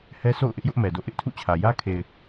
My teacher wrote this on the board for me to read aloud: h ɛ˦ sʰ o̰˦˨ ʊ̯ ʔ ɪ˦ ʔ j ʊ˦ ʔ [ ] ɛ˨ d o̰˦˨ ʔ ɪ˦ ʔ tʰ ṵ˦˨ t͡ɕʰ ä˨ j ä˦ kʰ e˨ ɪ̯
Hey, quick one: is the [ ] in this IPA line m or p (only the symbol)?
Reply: m